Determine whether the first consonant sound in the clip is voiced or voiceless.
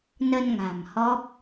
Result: voiced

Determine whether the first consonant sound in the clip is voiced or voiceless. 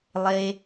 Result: voiced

